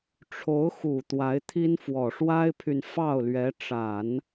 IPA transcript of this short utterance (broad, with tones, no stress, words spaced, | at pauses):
ʈ͡ʂʰo˧˥ʊ̯xu˨˩ t̪wa˧˥ɪ̯t̪ʰi˥nfwɔ˨˩ ʂwa˥ɪ̯pʰy˨n fɑ˥˩ʊ̯lɥɛ˧˥ ʈ͡ʂa˨˩˦n